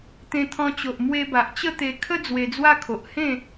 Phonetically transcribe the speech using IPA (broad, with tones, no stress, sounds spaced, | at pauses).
t̪ ẽ˧ t̪ʰ ɔ̃˧ t͡ɕ o˨ ʔ m w e˧ b a˨ ʔ t͡ɕ ə˥˧ t̪ e˧ kʰ ə˦ d͡z w e˧ d͡z w a˦ kʰ o˨ ʔ h ẽ˥˧